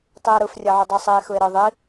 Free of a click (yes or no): yes